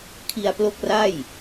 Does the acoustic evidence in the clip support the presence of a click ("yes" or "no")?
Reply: no